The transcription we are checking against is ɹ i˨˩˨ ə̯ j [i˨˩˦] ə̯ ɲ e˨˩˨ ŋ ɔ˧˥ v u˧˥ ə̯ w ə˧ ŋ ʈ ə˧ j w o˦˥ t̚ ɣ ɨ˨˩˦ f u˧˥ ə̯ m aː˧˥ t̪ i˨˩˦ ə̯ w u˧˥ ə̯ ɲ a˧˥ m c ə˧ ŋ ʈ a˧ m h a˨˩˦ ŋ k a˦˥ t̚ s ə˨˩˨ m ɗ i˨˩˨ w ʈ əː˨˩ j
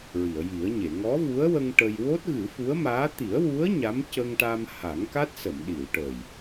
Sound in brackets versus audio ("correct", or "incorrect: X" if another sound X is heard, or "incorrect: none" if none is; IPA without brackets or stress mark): correct